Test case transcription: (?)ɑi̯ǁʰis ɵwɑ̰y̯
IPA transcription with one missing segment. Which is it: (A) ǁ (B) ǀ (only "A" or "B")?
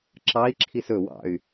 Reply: A